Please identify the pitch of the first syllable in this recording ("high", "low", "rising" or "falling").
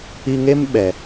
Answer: high